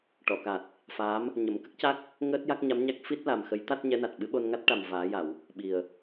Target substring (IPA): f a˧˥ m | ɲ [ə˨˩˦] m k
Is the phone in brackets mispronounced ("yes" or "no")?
no